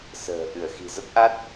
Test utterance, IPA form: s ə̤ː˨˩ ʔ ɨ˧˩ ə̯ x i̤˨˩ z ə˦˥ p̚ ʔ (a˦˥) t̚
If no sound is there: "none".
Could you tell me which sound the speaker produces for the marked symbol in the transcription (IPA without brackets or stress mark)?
a˦˥